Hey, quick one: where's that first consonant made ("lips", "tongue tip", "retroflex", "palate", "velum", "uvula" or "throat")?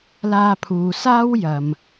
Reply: tongue tip